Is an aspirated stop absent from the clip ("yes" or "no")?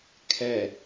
no